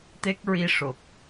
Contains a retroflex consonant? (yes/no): yes